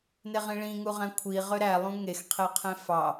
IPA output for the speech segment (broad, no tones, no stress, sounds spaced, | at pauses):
n e ʁ ĩ ɭ ĩ ŋ u ʁ æ̃ kʷʰ i ʁ ø ɾ æ lˠ ũ ŋ e x qʰ e qʰ ẽ f ɑ